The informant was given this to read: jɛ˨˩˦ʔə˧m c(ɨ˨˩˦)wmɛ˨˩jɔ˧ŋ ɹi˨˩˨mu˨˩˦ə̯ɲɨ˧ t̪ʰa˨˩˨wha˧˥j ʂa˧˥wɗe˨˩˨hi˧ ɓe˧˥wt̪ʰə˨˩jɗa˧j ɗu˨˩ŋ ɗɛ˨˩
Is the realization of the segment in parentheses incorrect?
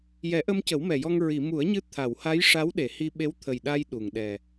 yes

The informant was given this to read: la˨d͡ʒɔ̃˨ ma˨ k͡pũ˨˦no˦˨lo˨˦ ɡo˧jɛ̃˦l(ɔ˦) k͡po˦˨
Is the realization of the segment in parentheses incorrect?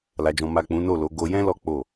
no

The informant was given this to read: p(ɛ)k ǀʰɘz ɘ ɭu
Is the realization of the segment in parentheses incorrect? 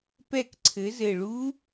no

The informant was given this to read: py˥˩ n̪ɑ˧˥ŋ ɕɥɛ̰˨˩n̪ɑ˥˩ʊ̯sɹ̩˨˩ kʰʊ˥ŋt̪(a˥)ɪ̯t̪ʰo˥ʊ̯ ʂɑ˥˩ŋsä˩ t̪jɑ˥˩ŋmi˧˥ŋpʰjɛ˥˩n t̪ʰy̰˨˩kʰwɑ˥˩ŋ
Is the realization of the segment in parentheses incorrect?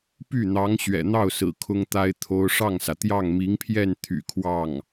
no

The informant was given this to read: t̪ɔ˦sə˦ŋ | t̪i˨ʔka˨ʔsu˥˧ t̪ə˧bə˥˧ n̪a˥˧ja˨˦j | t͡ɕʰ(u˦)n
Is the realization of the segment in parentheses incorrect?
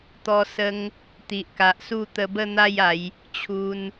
yes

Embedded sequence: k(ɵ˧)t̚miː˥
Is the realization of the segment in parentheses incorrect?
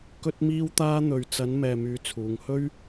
yes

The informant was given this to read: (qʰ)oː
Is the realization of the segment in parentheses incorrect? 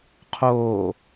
no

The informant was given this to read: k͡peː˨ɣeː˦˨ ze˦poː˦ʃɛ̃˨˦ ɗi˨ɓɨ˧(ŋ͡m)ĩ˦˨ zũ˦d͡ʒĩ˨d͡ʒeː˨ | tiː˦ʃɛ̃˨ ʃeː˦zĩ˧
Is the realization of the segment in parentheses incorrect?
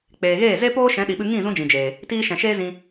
yes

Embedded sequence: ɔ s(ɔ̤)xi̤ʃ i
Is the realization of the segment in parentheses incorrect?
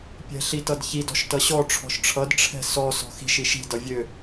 no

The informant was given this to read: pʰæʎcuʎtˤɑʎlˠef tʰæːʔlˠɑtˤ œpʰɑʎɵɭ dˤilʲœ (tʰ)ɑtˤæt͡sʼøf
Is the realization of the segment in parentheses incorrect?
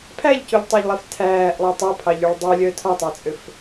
no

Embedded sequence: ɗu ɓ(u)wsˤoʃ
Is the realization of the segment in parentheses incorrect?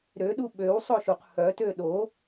yes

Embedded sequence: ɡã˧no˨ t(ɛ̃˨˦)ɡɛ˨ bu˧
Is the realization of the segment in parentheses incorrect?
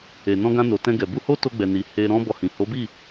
yes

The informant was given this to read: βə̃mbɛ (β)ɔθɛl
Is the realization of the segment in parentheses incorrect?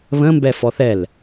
yes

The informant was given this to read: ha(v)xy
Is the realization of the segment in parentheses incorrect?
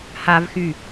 no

